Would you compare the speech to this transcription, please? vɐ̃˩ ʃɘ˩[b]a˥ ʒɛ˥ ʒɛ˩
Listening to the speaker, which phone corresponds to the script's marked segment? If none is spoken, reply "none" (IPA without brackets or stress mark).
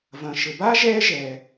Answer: b